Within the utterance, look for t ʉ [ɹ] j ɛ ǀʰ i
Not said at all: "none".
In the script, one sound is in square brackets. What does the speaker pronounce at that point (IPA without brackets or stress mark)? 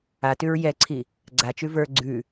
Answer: ɹ